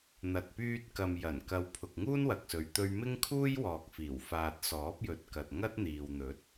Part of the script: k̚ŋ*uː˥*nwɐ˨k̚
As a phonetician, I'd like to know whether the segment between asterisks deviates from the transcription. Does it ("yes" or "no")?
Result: no